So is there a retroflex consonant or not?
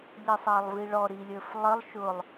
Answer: yes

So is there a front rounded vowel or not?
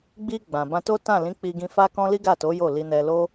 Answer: no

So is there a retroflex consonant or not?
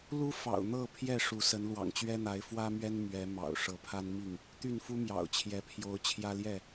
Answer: yes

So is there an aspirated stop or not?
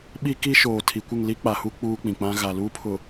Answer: yes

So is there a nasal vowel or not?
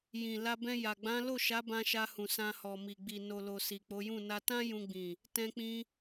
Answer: yes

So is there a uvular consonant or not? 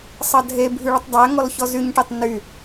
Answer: no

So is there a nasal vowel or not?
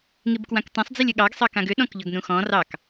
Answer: yes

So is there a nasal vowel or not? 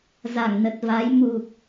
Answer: no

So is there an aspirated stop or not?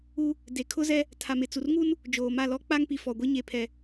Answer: yes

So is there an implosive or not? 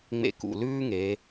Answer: no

